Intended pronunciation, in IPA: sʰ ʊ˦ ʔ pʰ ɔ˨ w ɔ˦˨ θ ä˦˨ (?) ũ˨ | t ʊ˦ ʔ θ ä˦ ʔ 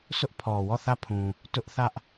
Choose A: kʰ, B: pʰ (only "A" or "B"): B